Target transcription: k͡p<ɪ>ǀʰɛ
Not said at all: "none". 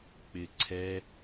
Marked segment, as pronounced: ɪ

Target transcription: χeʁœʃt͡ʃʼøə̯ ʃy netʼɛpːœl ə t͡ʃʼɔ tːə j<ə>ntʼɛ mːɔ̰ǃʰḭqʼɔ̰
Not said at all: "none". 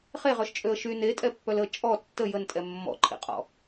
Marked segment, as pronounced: ə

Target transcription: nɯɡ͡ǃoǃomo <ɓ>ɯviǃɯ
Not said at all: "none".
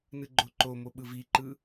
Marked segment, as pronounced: ɓ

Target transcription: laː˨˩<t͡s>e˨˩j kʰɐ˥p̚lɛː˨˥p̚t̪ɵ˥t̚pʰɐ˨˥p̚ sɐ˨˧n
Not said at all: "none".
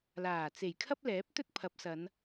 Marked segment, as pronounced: t͡s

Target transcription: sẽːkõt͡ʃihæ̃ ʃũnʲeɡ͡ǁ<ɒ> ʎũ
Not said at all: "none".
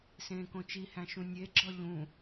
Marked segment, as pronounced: ɒ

